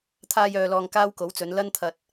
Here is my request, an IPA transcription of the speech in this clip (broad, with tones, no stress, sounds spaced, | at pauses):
t̪ʰ aː˧ j œː˨ l ɔː˨ ŋ k aː˥ w k o˨˥ w t͡s ɵ˨˧ n l ɐ˥ n t̪ʰ ɐ˧ t̚